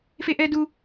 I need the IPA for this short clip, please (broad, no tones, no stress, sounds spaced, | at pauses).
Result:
f e ʔ ɛ d u